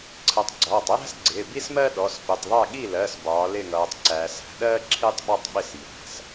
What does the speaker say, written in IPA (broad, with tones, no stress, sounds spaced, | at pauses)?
ǀʰ ə˩˥ tˤ ɡ͡ǀ ɒː˩˧˩ tˤ j æ̤˥ s ɡ͡ǀ ɪː˩˧˩ b i˥ s m ɜ˥ ɗ ɔ˩˧˩ s p ɪ˩˧˩ tˤ ðˤ ɜ˥˩ ɠ i˥˩ l ɜ˩˧˩ s b ɒː˩˧ l ɪ˥˩ ŋ ʌː˩˧ tˤ ǀ æ˩˧ s æ̤˩˧ ɗ ɜː˥ ǁʰ i˥ tˤ ɓ ɔ˥˩ tˤ ɓ ɪ˥˩ s j æ̤˩˧˩ s